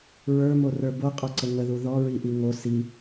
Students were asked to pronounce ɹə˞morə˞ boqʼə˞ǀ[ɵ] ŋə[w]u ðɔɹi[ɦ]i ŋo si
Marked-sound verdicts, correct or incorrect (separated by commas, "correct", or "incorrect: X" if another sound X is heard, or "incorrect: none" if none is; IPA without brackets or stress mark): incorrect: ə, incorrect: ð, incorrect: ʔ